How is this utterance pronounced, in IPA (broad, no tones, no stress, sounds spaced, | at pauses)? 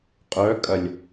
qʼ œ kʼ ɐ lʲ